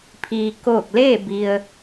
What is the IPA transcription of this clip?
pʰ iː˩ k oː˧˩ k̚ l eː˥˨ b i˩ ə̯

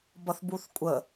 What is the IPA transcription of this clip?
b ʌ θ b u θ kʷʼ ə

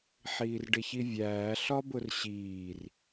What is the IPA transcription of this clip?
ħ iː r ɖ ɪ ç i vʲ æː ɬ ɒ b ʊ r ɕ iː r

